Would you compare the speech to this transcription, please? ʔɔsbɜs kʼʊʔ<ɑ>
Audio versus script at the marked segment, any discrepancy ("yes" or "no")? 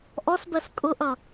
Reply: yes